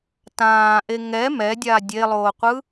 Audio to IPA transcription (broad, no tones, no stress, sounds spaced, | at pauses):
t ãː ʔ e ŋ ɛ m ɛ dʲ a dʲ e lˠ oː qʷ ɯ